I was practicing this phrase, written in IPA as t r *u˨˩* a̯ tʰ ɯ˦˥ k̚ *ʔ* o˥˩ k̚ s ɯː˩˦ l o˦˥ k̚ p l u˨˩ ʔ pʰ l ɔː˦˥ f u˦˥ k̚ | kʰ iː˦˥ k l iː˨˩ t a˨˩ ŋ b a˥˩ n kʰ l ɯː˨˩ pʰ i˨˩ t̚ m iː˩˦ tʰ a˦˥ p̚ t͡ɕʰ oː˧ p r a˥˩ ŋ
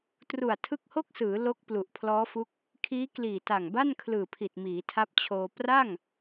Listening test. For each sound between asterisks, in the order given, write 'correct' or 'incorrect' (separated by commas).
correct, incorrect